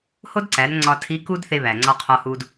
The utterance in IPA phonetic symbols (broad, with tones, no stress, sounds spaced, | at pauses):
h o˥ d ǀ æ˩˧ n ŋ͡ǀ ɒ˧ tʰ i˧˥ k u˥ d θ e˧ β æ˩ ŋ͡ǀ ɒ˧ qʰ ɒ˧ h u˧ d